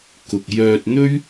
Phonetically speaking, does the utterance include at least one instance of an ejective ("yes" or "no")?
no